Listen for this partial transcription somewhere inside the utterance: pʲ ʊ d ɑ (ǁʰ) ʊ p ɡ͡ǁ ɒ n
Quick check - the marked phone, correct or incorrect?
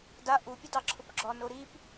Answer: correct